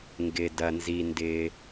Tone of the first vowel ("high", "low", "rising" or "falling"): low